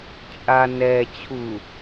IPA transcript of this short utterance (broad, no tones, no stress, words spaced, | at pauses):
t͡ʃʼa nɛ t͡ɕʰu